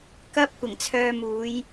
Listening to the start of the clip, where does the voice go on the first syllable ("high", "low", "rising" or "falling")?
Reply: high